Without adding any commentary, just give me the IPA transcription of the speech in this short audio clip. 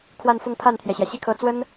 kʰ w a˥˧ n f ʊ˥˧ ŋ pʰ a˥˩ n t̪ʰ j ɛ˩ ɕ j ä˩ ɕ i˥˩ kʰ ɤ˧˥ t͡s w ə˥ n

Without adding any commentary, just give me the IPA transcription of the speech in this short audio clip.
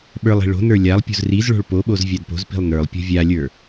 ɓ ə˞ lˠ i̤ ɭ o̤ n ə˞ lʲ a lˠ pʲ o̤ z r i z ɭ o̤ ɭ p o ɓ o z vʲ a d p o̤ z p i̤ lˠ n ə˞ lˠ pʲ o̤ vʲ a lʲ ə˞

